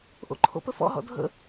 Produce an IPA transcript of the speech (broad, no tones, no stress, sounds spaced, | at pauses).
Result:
ʔ o̰ ǃʰ o̰ p ə f ɔ̰ ɦ ɔ̰ dʱ ə̰